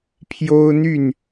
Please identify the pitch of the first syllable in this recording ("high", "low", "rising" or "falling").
high